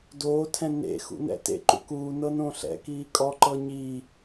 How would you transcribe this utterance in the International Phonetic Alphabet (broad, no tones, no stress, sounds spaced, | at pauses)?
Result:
d oː tʰ ɛ̃ n ḛ x ṵ n ɛ̰ t ḛ ǃ ṵ k uː n ɤ n õ ɬ ɛ̰ k iː kʼ ɔ ǃ ɤ ɲ i